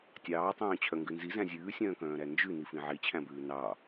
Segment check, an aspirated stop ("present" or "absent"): present